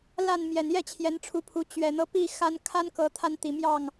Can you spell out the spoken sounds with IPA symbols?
l a˥˨ n m j ɛ˨˩ n j ɛ˥˨ t͡ɕʰ j ɛ˨˦ n ʈ͡ʂʰ u˨˦ pʰ u˨˦ t͡ɕ ɥ ɛ˨˩ n̪ ɤ˦ p i˥˨ x a˦ n kʰ a˦ n k ɤ˨˦ t̪ʰ a˧ n t̪ i˨˩ m j ɑ˥˨ ŋ

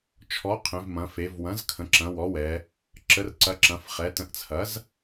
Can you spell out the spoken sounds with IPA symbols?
t͡ʃʰ ɔ˩˥ qʰ ẽ˩˧ v m ɐ̃˩˧ f e˩˧ v w ɐ̃˩˥ z kʰ ə̃˩˧ ǁ ɐ̃˩˧ w ɔ˩˥ w ɛ˩˧ | ǁ ə˩˧ r ǀ ɐ˩˧ ǁ ɐ̃˩˧ f χ ɛ˩˧ t ə̃˩˥ ʔ t͡sʰ ɐ˩˥ z

